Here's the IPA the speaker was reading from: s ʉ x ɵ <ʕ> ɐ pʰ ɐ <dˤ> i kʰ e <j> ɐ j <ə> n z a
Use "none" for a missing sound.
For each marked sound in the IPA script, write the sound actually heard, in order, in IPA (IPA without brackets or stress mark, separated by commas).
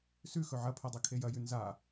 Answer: ʕ, dˤ, j, ʉ